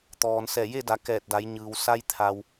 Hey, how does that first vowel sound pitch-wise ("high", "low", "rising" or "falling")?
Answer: low